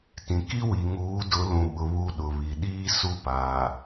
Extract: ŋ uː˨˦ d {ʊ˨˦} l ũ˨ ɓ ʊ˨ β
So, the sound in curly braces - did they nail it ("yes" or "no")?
yes